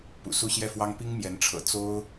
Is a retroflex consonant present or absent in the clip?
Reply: present